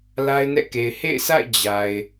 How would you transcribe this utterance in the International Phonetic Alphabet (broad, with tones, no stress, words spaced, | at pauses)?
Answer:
la˦ɪ̯nɛ̰˦˨ke˨ɪ̯ hḛ˦˨ɪ̯sʰa̰˦˨ɪ̯ d͡ʑa˨ɪ̯